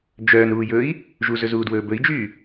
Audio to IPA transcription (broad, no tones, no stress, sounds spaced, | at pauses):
d͡ʒ œː n ɾ uː j ɵː i̯ | ʒ u z ɵ z uː d w ɵː b ɵ i̯ d͡ʒ yː